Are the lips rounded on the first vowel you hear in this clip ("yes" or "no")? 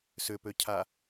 yes